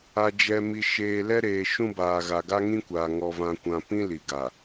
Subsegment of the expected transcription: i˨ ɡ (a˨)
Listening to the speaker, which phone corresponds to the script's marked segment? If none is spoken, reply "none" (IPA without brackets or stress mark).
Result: a˨